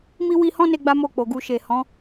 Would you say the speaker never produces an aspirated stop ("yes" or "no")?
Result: yes